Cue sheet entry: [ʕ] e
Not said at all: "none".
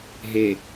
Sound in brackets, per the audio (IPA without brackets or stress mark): ɦ